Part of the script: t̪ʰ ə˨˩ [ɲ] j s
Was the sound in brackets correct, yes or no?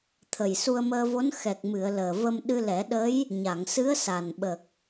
no